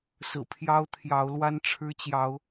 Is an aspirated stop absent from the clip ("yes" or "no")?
no